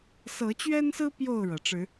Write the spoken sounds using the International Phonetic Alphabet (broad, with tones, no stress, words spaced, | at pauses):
sɤ˨˦t͡ɕɥɛ˦nsɹ̩˦ pjo˥˨ʊ̯ɻɤ˩ ʈ͡ʂɻ̩˨˦